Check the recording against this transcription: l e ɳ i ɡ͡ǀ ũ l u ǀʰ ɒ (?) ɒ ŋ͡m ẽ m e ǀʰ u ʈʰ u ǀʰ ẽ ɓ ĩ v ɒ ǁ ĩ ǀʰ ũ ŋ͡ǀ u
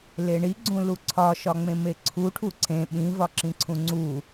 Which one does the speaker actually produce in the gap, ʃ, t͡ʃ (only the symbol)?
ʃ